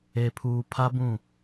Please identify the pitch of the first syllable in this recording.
low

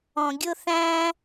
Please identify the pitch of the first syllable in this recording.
low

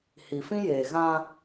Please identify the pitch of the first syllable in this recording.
low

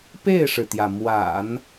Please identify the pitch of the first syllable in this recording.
falling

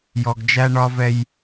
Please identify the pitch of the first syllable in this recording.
low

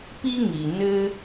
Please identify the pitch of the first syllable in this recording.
high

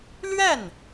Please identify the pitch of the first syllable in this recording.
falling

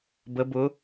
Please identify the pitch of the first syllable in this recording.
rising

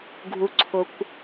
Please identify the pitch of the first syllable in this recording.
low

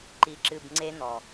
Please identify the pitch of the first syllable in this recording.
low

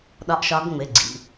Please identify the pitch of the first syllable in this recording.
rising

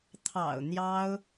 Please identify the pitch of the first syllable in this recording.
low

